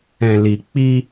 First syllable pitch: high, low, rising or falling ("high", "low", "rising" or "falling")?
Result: low